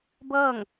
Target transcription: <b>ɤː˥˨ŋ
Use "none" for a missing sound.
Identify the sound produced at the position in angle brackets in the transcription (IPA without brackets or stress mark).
b